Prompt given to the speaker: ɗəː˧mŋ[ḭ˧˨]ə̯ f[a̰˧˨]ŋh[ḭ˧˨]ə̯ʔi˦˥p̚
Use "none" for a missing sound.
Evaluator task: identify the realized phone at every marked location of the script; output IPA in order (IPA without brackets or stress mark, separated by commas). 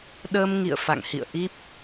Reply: ḭ˧˨, a̰˧˨, ḭ˧˨